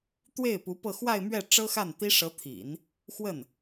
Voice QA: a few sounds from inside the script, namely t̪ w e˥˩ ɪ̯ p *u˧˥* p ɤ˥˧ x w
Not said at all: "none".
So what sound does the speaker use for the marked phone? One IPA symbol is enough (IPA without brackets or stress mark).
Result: u˧˥